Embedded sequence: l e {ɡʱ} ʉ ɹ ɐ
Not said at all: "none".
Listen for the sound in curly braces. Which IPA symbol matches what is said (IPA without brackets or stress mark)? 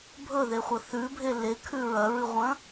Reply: kʰ